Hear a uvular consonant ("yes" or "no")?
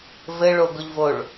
no